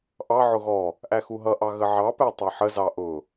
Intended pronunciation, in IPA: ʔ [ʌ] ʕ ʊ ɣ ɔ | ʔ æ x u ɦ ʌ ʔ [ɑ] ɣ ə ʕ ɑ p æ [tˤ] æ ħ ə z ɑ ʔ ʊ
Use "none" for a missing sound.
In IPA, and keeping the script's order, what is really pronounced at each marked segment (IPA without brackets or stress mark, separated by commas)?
ɑ, ɑ, tˤ